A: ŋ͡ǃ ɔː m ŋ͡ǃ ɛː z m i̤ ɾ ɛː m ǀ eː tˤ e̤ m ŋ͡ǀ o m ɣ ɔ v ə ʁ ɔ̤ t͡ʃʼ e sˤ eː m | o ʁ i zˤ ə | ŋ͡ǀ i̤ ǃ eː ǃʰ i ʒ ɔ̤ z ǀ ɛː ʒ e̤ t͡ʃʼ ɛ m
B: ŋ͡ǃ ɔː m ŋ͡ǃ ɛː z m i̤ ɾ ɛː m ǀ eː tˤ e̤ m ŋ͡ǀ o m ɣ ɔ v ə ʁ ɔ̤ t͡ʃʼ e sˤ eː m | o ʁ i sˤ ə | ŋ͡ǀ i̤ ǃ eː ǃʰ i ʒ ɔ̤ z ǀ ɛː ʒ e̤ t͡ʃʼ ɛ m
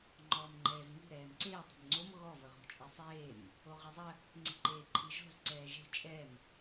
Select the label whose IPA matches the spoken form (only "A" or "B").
A